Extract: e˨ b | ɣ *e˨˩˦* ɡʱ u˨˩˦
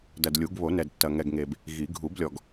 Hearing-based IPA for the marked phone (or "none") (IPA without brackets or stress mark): i˨˩˦